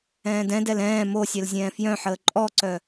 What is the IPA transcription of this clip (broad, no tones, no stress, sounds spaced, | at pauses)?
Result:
ɛ̃ː d ɛ̃ d ɛ l ɛ̃ː m o sʲ ɛ l zʲ ɛ̃ː f j œ̃ ħ əː ǃʼ ɔ ǀ œ